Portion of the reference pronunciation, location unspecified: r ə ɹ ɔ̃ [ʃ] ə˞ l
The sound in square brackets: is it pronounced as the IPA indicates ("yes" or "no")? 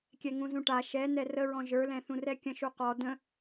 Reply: no